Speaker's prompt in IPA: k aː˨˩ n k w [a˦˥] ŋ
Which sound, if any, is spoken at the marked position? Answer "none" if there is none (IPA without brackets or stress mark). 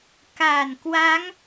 a˦˥